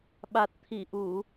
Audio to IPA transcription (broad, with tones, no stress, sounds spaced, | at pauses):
ɓ a˨˩ t̚ t̪ʰ i˧˩ ʔ u˧˩˨